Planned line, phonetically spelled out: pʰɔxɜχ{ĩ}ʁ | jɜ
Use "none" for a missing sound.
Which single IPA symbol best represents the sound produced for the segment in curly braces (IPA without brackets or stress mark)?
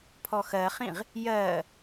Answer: ĩ